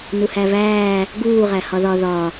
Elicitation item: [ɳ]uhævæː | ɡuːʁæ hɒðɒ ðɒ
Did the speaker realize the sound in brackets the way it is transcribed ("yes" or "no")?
no